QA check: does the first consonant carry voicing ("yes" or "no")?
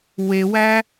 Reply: yes